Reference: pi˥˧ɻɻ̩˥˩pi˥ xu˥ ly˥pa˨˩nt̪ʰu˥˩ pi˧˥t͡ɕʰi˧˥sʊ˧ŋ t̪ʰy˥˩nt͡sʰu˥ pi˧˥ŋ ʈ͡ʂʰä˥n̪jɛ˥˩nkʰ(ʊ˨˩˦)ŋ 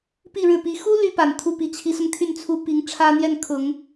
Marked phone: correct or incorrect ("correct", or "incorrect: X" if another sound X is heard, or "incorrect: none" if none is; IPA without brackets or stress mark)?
correct